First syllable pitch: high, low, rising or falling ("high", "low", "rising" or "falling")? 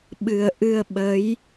low